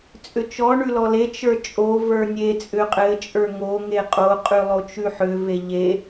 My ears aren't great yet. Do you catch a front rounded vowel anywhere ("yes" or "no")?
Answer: yes